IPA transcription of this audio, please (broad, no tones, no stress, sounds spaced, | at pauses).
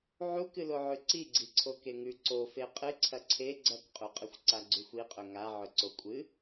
ʕ u k ɨ l o ʕ ʉ ǀ i ɡ͡ǀ i ǀʰ o k e ŋ ʉ ǀ o f e qʼ ɨ ǀʰ ɐ ǀʰ e ɡ͡ǀ ɐ k qʼ u qʼ ɨ xʷ ǀ a ɡ͡ǀ u xʷ i qʼ ɵ ŋ a ʕ ɵ ǀ o kʷʼ ɨ